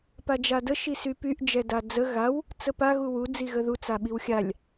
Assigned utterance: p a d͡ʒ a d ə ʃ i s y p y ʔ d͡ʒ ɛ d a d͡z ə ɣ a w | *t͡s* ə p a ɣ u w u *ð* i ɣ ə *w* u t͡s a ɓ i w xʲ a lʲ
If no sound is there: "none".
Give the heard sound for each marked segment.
t͡s, d͡z, ð

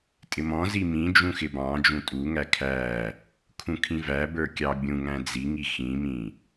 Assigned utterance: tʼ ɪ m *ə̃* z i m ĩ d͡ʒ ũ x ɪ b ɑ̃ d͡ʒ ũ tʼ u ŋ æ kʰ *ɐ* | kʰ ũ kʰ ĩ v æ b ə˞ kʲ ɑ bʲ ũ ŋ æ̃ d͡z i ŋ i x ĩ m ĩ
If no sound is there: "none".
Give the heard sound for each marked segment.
ɔ̃, æ

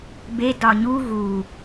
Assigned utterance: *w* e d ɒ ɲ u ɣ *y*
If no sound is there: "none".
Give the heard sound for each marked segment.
b, u

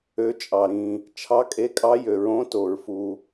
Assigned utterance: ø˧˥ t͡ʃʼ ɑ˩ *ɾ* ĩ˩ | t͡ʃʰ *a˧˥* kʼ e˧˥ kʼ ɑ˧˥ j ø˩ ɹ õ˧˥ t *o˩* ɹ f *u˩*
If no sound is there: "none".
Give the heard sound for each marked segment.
ɾ, ɑ˧˥, o˩, u˩

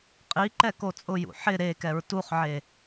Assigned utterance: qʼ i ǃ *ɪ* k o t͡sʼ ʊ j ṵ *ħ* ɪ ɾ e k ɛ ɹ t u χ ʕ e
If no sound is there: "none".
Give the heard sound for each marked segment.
ɛ, ħ

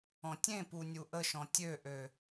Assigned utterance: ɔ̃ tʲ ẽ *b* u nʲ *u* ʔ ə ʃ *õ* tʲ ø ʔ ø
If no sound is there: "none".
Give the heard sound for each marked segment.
p, u, ɔ̃

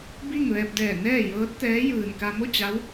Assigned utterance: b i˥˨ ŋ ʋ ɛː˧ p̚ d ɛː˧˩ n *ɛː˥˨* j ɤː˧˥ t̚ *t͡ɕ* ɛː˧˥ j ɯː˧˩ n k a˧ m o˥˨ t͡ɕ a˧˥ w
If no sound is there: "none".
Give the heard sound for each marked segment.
ɛː˥˨, t̪

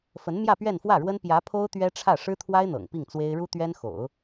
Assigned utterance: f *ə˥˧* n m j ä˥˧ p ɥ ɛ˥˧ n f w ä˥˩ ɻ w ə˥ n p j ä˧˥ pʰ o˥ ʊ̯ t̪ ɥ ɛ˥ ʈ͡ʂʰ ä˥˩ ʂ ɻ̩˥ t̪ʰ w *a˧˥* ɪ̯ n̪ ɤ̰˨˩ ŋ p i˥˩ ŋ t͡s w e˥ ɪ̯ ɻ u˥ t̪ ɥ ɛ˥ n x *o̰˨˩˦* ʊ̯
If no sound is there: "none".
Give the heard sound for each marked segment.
ə˧˥, a˥, o̰˨˩˦

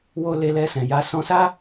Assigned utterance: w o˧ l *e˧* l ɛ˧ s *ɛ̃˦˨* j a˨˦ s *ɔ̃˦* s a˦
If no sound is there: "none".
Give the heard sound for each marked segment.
e˧, ɛ̃˨, ɔ̃˧

